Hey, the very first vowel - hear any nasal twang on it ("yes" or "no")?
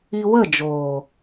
no